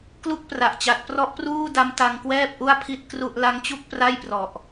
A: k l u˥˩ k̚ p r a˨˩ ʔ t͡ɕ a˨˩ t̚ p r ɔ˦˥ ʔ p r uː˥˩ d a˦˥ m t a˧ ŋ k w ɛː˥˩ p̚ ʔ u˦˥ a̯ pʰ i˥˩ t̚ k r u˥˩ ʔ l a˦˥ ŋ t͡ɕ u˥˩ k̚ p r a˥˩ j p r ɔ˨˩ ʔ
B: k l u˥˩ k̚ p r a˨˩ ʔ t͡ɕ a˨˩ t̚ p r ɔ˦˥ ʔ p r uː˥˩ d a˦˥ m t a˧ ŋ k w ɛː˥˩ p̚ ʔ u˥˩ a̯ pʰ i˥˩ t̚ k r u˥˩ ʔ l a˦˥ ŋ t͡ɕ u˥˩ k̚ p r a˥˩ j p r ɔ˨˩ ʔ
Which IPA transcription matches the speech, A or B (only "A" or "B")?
B